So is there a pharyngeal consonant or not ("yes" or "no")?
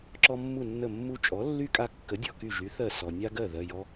no